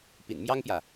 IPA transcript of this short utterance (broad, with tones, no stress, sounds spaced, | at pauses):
p ḭ˨˩ n m j ɑ˥ ŋ p j ä˨